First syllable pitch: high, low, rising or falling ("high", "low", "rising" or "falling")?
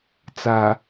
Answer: low